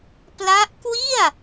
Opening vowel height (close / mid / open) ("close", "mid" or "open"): open